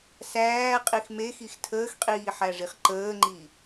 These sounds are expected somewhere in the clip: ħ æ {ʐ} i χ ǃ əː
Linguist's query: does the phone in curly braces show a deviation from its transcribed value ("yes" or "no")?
no